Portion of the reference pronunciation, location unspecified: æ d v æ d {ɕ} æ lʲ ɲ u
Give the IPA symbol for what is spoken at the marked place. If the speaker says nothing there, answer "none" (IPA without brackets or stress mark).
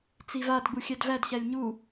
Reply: ɕ